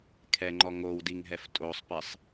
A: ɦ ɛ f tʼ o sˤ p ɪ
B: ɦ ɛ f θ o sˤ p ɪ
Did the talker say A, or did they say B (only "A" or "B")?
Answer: A